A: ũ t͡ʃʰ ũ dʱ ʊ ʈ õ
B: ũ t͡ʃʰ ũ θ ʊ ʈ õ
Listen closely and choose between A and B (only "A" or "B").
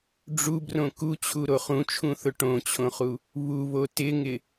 B